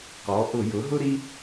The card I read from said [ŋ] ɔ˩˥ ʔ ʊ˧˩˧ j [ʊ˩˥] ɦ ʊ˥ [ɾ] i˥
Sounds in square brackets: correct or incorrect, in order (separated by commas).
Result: incorrect, correct, correct